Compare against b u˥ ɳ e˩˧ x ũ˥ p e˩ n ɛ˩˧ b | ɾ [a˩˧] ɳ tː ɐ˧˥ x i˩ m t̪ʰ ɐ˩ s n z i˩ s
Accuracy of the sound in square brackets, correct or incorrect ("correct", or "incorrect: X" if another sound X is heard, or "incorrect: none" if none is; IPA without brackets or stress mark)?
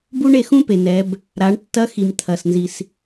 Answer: correct